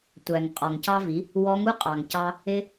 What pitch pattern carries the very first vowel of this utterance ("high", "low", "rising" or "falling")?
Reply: low